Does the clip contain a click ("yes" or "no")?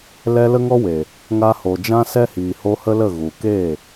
no